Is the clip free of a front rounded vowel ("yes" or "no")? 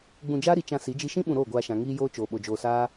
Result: yes